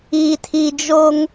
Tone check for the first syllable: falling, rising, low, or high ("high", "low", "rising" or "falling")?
low